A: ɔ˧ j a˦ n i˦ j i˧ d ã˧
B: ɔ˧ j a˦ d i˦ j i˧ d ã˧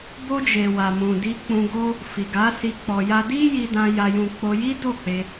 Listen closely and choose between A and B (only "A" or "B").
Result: B